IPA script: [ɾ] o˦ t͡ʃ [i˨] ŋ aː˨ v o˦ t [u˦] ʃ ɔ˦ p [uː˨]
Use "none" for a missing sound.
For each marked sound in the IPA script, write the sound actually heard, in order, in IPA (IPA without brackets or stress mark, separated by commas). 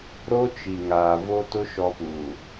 ɾ, i˨, ʊ˦, uː˨